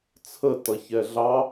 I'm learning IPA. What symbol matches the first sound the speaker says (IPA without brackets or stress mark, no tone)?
t͡sʰ